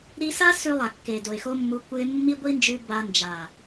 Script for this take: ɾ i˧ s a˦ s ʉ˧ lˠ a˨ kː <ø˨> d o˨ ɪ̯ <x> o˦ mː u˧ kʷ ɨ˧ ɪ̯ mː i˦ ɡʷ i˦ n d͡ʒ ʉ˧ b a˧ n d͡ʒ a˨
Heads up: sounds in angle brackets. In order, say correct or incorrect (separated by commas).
incorrect, correct